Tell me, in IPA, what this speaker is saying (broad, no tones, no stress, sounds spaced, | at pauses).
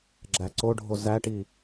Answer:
ɡ͡ǁ æ ǀ o ɖʱ o z æ ʈ i